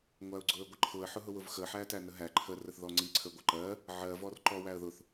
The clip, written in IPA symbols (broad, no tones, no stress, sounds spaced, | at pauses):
ŋʷ æ ʊ̯ ɡ͡ǀ ʊ ə̯ ɡʷ ə ǃʰ ʊ ə̯ ħ ʊ ɦ ʊ w ʊ v x ə ħ æ t æ n ə ɦ æ ǃʰ ə r ə θ ð ɔ ŋ͡ǀ i ǀʰ ə ɡʷ ə ǃ ɜ | ʕ ɜ v ɔ r ǃ ɔ w æ ə̯ ð ʊ θ